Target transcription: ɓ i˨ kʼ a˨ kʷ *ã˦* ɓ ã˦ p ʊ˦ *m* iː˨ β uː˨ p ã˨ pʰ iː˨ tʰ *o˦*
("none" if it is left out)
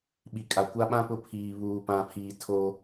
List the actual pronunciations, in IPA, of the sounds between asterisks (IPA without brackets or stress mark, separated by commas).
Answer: a˦, pʰ, o˦